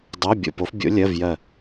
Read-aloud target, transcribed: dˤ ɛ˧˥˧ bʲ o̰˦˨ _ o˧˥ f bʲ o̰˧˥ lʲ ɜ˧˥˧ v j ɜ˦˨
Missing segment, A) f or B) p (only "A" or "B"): B